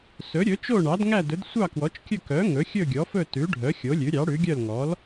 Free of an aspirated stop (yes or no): yes